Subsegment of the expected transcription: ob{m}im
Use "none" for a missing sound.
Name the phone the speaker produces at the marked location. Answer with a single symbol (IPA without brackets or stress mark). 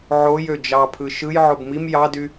m